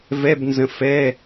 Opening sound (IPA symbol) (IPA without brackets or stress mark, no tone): v